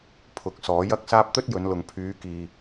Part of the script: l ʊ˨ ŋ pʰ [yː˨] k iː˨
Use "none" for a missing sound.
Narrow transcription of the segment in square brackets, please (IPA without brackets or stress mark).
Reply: yː˨˧